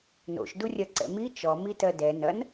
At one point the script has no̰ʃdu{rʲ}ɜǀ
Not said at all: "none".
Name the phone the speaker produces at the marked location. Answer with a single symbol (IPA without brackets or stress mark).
rʲ